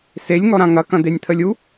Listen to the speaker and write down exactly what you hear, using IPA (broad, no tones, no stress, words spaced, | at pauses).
selʲŋɔɾã ŋɐkɐ̃d̪enʲt̪ʰəlʲ u